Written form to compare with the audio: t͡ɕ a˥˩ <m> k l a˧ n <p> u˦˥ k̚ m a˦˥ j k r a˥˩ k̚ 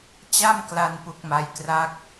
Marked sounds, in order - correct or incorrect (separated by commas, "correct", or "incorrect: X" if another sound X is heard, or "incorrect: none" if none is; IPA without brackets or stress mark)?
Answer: correct, correct